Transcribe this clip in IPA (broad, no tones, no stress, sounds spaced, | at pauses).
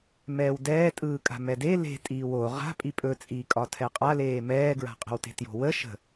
m ɛː w d ɛː tʼ ɯː kʼ a̤ m ɛ d e l e̤ tʼ iː w o ʁ a̤ pʼ i pʼ ɵ t͡sʼ iː kʼ ɒ tʰ ɛ qʼ a l eː m ɛː ɡ ɹ a̤ qʼ ə̤ w t e̤ t j o̤ w ə ʃ ə̤